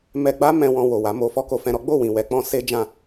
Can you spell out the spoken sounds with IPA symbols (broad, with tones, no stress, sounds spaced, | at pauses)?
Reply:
m ɛ˧ ɡ͡b a˦ m ɛ̃˧ w ɔ̃˧ w o˨ w a˨˦ m o˧ f ɔ˦ k o˧ f ɛ̃˧ ɾ ɔ˦ ɡ͡b o˦˨ w ĩ˨ w ɛ˨˦ k͡p ɔ̃˧ s e˦ d͡ʒ ã˦˨